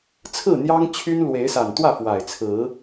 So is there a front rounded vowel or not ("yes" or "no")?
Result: yes